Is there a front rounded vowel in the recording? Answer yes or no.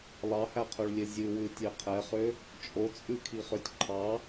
yes